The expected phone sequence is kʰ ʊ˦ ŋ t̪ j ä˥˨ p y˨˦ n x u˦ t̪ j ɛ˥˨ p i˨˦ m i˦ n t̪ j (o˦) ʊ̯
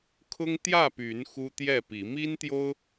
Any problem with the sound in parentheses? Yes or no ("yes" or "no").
no